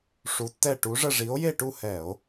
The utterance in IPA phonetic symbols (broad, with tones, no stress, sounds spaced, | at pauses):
ʂ u˧˥ tː ɛ˥˧ ʈ u˧˥ ʐ ə˥˧ ʐ i˧˥ o̯ j e˥˧ ʈ u˥˧ h ɛ˧˩˧ o̯